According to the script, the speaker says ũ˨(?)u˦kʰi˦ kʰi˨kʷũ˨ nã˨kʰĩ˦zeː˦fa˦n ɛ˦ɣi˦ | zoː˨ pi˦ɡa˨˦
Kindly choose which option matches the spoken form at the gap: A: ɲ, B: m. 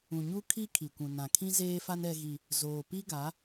A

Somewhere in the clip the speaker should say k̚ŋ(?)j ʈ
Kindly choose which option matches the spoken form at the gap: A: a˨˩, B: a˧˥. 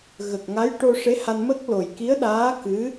B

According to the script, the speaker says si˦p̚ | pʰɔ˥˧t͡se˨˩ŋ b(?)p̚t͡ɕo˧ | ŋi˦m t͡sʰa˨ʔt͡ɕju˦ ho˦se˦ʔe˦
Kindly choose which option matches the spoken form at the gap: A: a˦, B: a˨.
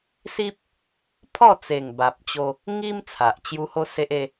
B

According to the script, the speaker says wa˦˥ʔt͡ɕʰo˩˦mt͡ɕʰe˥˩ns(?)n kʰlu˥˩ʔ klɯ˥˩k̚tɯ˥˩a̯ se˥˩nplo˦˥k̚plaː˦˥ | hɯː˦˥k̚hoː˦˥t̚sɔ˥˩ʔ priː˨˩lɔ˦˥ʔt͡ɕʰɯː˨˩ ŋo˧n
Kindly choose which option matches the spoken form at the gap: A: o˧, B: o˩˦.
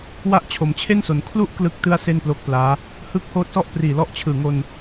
B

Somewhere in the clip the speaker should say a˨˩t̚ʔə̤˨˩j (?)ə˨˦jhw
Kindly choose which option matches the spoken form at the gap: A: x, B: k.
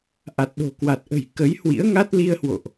B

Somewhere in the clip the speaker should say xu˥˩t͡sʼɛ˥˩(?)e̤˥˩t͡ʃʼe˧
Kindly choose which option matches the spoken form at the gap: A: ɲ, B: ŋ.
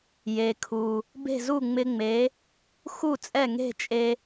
B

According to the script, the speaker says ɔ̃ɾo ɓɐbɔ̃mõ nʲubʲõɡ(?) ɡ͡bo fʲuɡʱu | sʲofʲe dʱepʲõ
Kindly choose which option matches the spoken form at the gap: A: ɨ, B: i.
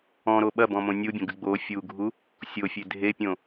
A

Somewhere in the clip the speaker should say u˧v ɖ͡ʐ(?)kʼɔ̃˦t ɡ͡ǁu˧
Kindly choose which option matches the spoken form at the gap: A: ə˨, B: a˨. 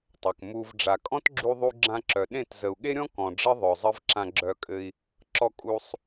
B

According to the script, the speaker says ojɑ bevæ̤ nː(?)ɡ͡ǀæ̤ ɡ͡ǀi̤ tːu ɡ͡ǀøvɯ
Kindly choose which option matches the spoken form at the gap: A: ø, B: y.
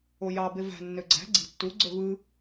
A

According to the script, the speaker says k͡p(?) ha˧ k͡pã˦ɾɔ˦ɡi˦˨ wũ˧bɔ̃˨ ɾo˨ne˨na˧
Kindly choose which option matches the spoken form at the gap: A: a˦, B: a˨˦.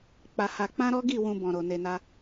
A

